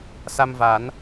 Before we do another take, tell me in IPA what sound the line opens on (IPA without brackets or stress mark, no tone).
s